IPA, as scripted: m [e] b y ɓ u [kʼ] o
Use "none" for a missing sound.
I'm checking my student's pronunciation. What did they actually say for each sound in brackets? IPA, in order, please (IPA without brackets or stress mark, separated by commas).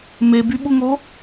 e, ŋ